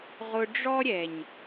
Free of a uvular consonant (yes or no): no